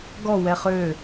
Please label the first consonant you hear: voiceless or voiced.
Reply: voiced